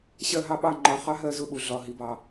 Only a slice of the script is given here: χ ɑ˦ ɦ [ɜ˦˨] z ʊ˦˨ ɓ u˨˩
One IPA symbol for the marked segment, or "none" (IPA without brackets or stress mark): ɜ˦˨